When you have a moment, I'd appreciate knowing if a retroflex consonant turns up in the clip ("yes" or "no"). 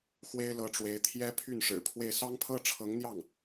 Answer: yes